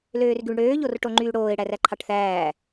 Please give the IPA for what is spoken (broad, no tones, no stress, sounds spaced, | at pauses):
l øː r ɡ y ɳ ɽ øː ʎ o r ʈ o ŋ͡ǃ yː ɽ oː ɪ̯ ɽ æ r æ ǃʰ ɑ ʈ θ æː